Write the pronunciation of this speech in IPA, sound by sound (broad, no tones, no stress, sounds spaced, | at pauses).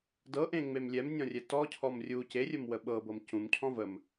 d ɤ ʔ ẽ ŋ͡m e m lʲ ɛ m nʲ ɔ̃ rʲ ɛ t ɔ cʰ ɔ m rʲ u c e rʲ ə m w ə ɓ ɤ b ɤ m c ũ m cʰ ɔ̃ v ə m